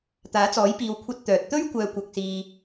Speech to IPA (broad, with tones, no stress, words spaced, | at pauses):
t̪aː˨˥t͡sɔː˨˥jpiː˨w kʷʰɐ˧t̚ t̪œː˨t̚ t̪ɵ˥ɥkʷœː˨˧ kʷɐ˧k̚siː˧